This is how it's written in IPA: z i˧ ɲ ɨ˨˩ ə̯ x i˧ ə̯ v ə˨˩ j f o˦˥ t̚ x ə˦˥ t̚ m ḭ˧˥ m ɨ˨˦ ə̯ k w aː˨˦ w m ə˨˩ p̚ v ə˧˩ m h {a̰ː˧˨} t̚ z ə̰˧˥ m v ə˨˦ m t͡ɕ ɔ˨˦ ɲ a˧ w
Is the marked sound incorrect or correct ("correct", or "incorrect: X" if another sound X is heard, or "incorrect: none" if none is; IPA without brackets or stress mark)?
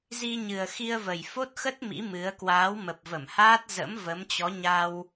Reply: incorrect: aː˦˥